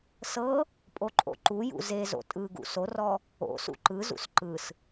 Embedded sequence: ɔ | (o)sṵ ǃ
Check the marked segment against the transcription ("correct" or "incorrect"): incorrect